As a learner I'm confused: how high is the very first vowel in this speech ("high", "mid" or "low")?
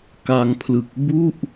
low